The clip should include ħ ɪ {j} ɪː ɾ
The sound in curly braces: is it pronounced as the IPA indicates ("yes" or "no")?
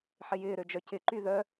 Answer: yes